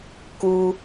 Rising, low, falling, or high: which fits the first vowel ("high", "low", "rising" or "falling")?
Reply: high